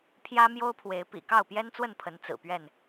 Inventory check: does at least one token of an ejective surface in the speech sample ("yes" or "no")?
no